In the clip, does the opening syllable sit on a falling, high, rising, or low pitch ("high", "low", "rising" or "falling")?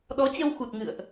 rising